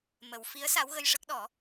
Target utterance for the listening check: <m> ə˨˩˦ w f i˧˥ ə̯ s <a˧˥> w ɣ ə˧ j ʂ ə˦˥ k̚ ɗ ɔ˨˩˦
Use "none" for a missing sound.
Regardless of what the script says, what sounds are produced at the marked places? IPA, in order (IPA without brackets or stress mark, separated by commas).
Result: m, a˧˥